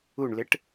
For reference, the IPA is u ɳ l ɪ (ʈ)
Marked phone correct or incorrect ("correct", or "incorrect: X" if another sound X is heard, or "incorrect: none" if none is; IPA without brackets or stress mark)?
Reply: correct